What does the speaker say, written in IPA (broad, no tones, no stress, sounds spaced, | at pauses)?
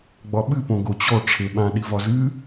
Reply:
ɡ͡b ɒ ɓ ɨ p õ ɡ o t͡ɕ ɔ ʈ͡ʂʰ e ɓ ã ɗ i v ɒ z ɨ